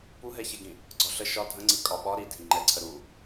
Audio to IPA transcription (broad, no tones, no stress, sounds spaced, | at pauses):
p u ɦ ɛ ç ɛ ɡ ĩ | ɡ͡ǀ ɒ ɬ ə ʃ ɒ dʱ ə̃ ŋ͡ǀ i kʼ ɒ ɓ ɒ ɾ i dʱ ĩ ŋ͡ǃ ɛ ǀʰ ə ɾ u